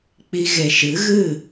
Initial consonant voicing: voiceless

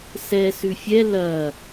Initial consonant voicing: voiceless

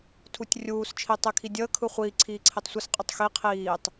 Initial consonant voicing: voiceless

